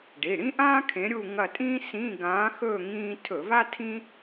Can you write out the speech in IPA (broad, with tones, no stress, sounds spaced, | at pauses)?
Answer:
ɖ i˩˧˩ ɽ ĩ˥ ʔ ãː˥ kʰ ẽ˨˦ ɾʲ u˦˨ ŋ ɐ˦˨ tʼ ĩː˥ s ĩ˧˥˧ ɡ ãː˨˦ x ɵː˦˨ ŋ ĩː˥ tʰ ɵ˧˩˧ v a˥ tʰ ĩ˥